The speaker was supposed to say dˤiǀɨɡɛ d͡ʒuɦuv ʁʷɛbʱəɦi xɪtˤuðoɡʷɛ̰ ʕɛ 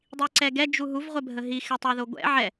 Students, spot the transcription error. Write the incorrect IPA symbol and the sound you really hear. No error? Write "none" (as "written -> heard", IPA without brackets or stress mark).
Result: ɨ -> ɛ